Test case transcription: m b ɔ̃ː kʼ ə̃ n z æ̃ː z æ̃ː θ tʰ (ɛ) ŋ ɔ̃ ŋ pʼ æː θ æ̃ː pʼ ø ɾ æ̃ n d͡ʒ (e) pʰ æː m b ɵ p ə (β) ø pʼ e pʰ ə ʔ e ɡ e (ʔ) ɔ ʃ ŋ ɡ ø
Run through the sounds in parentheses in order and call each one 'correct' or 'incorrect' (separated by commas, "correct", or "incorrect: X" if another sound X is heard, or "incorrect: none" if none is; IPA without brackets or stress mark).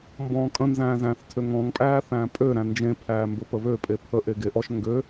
incorrect: ø, incorrect: ẽ, correct, correct